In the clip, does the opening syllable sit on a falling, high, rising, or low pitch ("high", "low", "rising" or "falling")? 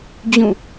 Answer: falling